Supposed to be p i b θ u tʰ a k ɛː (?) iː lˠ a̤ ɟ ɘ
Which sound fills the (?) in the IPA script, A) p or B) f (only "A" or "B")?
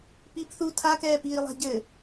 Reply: A